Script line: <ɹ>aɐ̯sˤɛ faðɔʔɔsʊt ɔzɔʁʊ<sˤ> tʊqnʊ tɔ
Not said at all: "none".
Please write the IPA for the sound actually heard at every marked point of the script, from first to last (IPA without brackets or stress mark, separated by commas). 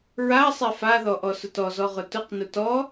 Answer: ɹ, none